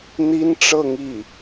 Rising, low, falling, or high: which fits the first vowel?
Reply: high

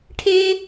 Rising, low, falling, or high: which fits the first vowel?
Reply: high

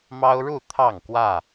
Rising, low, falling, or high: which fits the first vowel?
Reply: high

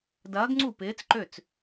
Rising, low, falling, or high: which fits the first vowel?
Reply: rising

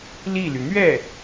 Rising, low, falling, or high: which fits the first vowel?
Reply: falling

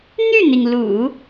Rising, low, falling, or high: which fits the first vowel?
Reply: falling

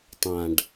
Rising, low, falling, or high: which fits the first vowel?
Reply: low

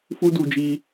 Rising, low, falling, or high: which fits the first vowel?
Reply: high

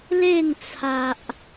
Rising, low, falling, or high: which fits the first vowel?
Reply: falling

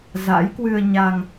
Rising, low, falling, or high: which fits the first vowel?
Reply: rising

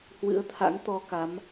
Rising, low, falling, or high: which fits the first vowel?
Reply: rising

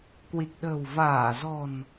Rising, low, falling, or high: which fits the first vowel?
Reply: low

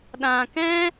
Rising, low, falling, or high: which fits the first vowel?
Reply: low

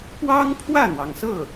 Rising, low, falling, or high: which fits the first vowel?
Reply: high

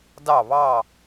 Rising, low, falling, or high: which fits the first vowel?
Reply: falling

